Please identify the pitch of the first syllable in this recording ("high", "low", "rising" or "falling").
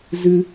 high